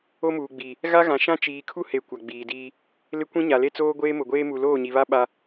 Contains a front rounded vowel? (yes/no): no